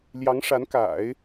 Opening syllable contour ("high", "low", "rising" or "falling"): rising